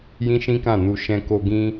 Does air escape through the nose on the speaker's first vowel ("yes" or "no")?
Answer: yes